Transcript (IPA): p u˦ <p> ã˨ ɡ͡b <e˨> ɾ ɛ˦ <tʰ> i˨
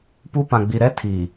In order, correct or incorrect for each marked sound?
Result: correct, incorrect: i˨, correct

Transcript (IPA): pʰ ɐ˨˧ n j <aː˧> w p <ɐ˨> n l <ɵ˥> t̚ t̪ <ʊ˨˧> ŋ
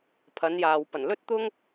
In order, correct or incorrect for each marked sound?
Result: incorrect: aː˨, incorrect: ɐ˨˩, correct, incorrect: ʊ˥

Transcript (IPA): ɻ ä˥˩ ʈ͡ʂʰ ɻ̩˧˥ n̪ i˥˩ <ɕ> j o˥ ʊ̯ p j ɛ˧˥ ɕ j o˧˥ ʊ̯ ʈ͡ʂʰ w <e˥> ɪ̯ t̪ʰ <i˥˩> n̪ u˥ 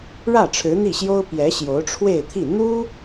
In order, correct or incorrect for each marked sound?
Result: correct, incorrect: e˥˧, correct

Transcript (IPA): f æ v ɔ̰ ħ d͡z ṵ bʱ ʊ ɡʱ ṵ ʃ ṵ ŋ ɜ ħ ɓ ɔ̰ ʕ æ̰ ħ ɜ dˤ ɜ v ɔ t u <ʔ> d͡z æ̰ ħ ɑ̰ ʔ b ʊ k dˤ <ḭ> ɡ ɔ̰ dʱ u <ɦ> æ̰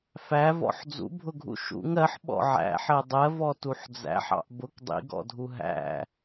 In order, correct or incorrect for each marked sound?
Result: incorrect: ħ, correct, correct

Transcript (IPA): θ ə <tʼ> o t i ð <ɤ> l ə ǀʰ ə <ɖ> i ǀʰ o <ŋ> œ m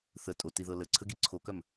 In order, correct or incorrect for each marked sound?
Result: correct, correct, incorrect: ɡ, incorrect: k

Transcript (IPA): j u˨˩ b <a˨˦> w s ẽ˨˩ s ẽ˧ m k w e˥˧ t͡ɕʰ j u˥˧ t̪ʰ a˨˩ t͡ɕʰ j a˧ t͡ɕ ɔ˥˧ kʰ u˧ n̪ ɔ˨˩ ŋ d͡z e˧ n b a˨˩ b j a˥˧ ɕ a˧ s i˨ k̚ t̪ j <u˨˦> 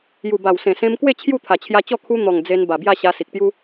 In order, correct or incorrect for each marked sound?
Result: incorrect: a˨˩, incorrect: u˦

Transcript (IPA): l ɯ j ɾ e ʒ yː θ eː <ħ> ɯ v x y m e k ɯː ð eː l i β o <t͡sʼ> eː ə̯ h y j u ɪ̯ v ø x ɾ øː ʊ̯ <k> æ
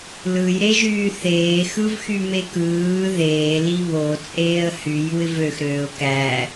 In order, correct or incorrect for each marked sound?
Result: incorrect: x, correct, correct

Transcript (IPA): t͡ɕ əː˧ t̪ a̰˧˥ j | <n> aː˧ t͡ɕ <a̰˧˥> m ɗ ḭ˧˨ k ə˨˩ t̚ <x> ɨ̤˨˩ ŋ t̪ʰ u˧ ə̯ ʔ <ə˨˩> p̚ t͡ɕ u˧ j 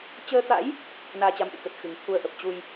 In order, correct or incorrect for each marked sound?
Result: correct, incorrect: a˨˦, correct, correct

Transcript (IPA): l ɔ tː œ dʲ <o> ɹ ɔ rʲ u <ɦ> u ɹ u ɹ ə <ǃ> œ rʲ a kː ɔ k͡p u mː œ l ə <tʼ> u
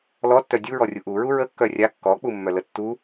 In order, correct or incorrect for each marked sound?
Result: incorrect: u, incorrect: ʔ, incorrect: kː, incorrect: tː

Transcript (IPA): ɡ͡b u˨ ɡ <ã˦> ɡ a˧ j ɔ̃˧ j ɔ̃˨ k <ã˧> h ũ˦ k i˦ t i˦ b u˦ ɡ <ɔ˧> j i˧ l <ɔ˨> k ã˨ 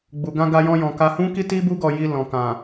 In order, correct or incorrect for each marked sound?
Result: incorrect: ã˧, incorrect: a˧, correct, incorrect: ɔ̃˨

